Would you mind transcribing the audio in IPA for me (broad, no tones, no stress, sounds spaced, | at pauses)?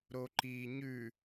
ɾ o ǃ iː ɲ ʉ